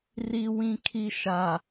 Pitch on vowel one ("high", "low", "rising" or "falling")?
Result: low